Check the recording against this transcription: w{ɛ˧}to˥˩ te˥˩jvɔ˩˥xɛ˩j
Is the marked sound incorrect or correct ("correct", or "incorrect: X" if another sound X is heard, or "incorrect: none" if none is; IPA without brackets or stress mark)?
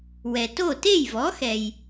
incorrect: ɛ˩